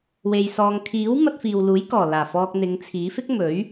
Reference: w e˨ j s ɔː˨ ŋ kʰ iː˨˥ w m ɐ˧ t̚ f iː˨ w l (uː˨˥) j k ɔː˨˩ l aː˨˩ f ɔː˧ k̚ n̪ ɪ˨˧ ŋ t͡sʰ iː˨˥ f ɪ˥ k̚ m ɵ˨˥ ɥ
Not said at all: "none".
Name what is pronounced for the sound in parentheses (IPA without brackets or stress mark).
uː˨˥